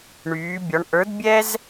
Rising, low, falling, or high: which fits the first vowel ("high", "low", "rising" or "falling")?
rising